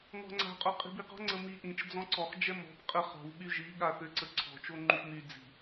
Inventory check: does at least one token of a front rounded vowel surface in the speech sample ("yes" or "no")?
yes